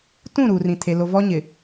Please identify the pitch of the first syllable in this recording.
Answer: falling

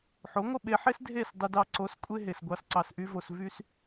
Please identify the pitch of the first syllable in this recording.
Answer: rising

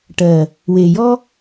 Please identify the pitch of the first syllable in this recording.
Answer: low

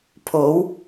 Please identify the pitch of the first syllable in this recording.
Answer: rising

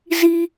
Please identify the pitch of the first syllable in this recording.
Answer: high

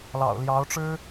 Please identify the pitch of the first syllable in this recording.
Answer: low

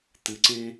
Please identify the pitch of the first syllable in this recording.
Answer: low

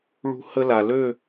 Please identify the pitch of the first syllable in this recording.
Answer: high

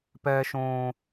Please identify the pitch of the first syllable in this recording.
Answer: high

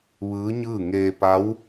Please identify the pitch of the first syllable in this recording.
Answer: rising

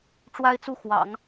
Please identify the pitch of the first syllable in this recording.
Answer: high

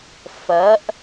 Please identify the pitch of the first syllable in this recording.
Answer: rising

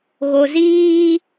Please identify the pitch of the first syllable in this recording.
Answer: low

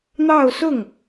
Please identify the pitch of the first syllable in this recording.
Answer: falling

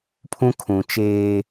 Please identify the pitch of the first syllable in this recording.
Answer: high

